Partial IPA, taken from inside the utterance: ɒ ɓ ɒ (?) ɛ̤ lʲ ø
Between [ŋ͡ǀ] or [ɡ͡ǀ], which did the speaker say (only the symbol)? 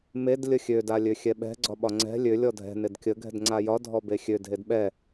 ŋ͡ǀ